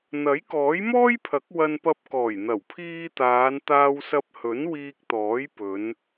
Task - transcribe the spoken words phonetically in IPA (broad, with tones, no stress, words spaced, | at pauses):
n̪ɐ˨˥jkɔː˨˥jmɔː˥jpʰɐ˨˥k̚ wɐ˧npɐ˧p̚kɔː˨˩j n̪ɐ˨˩wpʰiː˧t̪aː˨˧n t̪aː˧wsɐ˧p̚hɵ˨˥n wiː˧k̚t̪ɔː˨˥j pɵ˨˧n